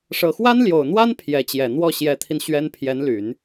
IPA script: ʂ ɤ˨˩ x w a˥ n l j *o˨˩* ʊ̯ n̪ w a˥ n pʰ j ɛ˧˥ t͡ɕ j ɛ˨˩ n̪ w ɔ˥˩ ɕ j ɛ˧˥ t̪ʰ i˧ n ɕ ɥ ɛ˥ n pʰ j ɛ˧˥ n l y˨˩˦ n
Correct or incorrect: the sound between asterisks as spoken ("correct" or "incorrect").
correct